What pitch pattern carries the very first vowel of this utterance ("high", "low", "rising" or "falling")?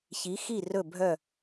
rising